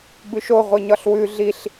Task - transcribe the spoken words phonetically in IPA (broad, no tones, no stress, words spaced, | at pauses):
bʉʃo ʁʷiɲɒɬwʉ ɮiɬ